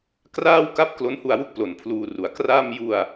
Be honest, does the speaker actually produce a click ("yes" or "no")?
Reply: no